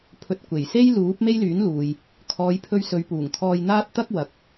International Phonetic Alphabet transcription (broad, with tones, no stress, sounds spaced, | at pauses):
pʰ ɵ˧ t̚ kʷ e˨˩ j s e˥ j l uː˨˥ p̚ m e˥ j l yː˨˥ n l uː˨ j | kʰ ɔː˨˧ j pʰ ɵ˧ ɥ s ɵ˨˧ ɥ p uː˨˩ ŋ t̪ʰ ɔː˧ j n̪ aː˥ t̚ t̪ ɐ˥ k̚ w ɐ˨ k̚